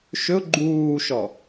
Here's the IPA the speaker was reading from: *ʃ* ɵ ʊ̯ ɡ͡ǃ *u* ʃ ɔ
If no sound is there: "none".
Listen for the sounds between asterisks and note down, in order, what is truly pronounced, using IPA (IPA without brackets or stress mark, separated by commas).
ʃ, uː